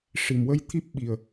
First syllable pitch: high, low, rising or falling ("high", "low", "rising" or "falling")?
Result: low